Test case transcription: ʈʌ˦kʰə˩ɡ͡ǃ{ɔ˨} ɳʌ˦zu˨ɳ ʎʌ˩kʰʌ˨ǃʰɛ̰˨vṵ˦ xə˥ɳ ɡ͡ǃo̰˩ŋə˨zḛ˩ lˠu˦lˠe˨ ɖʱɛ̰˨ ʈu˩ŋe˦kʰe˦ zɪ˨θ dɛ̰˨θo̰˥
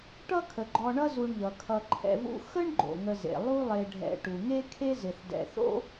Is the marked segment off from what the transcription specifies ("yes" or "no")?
no